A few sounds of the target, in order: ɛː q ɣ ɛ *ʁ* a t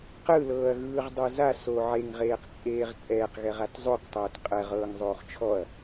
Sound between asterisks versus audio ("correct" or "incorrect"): correct